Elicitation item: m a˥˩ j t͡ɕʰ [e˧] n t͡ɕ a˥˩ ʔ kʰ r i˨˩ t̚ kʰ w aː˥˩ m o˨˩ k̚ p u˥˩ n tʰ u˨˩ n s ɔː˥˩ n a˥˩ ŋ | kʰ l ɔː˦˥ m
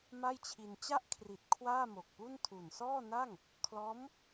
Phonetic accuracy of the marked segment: incorrect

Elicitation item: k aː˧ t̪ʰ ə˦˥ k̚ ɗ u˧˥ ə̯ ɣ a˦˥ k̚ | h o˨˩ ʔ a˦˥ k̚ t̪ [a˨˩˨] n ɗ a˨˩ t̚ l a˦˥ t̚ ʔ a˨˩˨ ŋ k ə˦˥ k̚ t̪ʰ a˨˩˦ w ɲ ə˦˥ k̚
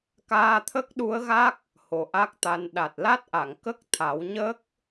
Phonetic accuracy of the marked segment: incorrect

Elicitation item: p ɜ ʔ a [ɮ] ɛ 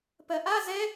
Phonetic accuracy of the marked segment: incorrect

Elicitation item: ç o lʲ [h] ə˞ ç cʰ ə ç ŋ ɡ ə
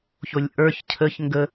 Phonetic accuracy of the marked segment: incorrect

